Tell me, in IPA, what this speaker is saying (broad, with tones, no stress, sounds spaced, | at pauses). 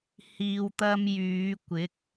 h iː˧ w t̪ ɐ˥ m j yː˨˧ kʷ ɪ˨˥ k̚